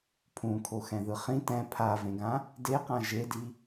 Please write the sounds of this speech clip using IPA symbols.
pʰ ũ kʰ o x ɛ̃ ð ɯ χ ĩ t ɛ̃ pʰ a v ẽ ɡ ã | d e q ã ʒ e d i

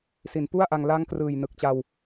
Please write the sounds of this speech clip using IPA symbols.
s i˩˦ n p u˥˩ a̯ ʔ a˧ ŋ l a˦˥ ŋ k r ɯː˨˩ j n ɯ˨˩ k̚ t͡ɕ a˧ w

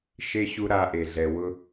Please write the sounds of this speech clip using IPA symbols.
ʃ e˦ ɕ u˦ ɾ a˧ ʔ e˨ ɮ ɛ˨ w ʊ˧

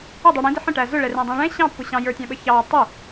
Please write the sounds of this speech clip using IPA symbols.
ə dˤ u ɽ ĩ d ɪ ħ ə̃ ʈ æ z ʊ ɭ ɛ r ɛ̃ dˤ ĩ ɭ ɛ̃ ɕ ɑ̃ pː ʊ ɕ ɑ̃ j ə˞ tʲ ɑ̃ ɓ ə ç ɑ tˤ ɪ

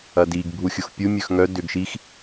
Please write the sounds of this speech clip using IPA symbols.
ɐ d i ɡ bʱ u xʲ ʊ x pʲ u mʲ œ x ŋ œ d ʏ ɡ ʃ i x

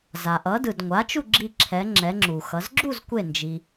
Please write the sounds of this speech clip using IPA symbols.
z a˩ ʔ ʌ˩˧ d ɯ˩ d ŋʷ a˩˥ t͡ʃ u˥˨ ɡ͡ǁ i˧ ǁʰ ɛ˩˧ ŋ͡ǁ ɛ˩˧ ŋ͡ǁ u˩ x ʌ˩˧ z ɡ͡ǁ u˥˨ z kʷ e˧˩ n d͡ʒ i˩

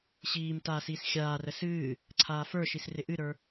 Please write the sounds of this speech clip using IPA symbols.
ɕ iː m t aː s iː s xʲ aː r ə s ɨː | ǀʰ aː f ə˞ ʃ i s r ɪ ʔ ɨ ɾ ə˞

